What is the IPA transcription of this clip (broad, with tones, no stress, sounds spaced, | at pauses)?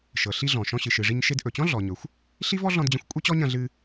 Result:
ʃ ɤ˩ ɬ i˧ ɮ ɔ̃˩ ʃ ɔ̃˧ ɕ ɨ˩ ʃ ɨ˩ ʐ i˧ ɲ ʃ e˧ d ʔ ɵ˩ t͡ɕ ɔ̃˥ ɮ ɔ˩ ɲ ɵ˩ xʷ | ɬ i˥ v ɔ˥ ɮ ɔ̃˧ d d͡ʑ ɐ̃˧ xʷ kʷʼ e˥ t͡ɕ ɔ˥ ɲ ɐ̃˧ ɮ ɨ˧